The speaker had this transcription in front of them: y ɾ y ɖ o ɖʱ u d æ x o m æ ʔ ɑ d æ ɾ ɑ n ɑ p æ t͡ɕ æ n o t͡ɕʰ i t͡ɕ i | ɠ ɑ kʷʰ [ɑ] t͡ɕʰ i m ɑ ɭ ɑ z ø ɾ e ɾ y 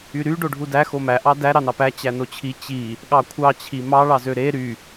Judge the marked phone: correct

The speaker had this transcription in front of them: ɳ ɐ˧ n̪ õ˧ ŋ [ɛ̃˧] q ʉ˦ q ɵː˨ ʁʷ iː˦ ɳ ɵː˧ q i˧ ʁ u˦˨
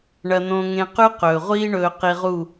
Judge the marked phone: incorrect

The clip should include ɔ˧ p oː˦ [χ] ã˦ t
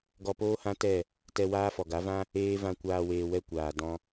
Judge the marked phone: incorrect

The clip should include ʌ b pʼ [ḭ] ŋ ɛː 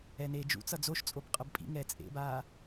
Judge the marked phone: correct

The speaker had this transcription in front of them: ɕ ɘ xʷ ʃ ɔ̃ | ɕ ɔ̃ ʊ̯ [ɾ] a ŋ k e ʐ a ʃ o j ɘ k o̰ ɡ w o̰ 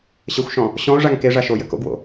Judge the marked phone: incorrect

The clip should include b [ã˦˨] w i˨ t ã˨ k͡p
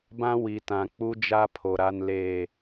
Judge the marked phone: incorrect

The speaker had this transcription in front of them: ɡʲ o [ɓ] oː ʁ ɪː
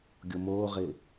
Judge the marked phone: incorrect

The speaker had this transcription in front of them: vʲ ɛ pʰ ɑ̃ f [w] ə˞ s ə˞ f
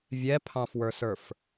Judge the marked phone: correct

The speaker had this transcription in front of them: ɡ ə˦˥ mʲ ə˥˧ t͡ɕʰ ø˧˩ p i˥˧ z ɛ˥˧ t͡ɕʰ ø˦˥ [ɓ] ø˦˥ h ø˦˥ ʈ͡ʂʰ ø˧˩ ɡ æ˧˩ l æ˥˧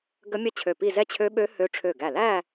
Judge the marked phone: correct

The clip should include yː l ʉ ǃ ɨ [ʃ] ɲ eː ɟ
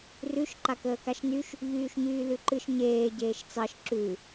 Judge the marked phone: correct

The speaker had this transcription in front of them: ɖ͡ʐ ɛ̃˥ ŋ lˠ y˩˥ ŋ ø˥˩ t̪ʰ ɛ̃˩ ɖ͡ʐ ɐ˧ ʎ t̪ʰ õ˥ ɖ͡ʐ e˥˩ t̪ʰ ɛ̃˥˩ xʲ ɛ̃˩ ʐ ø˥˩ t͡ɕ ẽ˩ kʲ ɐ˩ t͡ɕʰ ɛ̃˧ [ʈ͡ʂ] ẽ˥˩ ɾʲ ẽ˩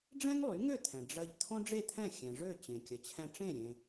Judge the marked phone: correct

